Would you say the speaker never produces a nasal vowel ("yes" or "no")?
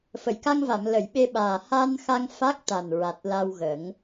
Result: yes